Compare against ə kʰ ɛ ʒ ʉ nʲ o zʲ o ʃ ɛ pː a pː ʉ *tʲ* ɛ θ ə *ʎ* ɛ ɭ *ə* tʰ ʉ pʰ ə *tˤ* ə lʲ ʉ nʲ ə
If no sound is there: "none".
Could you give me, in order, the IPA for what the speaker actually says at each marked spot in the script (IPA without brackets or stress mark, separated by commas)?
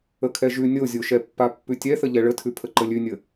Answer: tʲ, ʎ, ə, ǃ